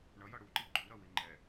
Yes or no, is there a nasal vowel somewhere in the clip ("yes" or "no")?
no